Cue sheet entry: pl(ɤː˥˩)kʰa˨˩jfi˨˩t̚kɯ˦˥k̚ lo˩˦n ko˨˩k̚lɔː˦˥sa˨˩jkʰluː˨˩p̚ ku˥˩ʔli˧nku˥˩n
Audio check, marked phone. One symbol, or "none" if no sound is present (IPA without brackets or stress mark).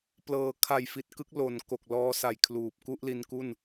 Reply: ɤː˩˦